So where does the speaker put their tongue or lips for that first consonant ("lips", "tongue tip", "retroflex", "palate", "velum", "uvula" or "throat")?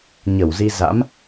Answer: palate